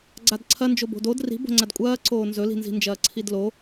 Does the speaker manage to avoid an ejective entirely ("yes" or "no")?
no